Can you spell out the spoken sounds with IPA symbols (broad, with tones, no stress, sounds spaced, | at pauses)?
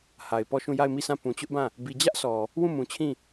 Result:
h a˨ ɪ̯ p ɔ˦˨ ʃ ũ˦˨ j a˦˨ ɪ̯ m i˦˨ s ã˦˨ p ũ˨ t͡ɕ ʊ˦ ʔ b ã˦˨ | b i˨ d͡ʑ ä˦ ʔ sʰ ɔ˨ | w ũ˦˨ m ũ˨ t͡ɕʰ ĩ˦˨